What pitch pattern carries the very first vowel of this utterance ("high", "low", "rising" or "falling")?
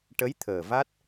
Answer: rising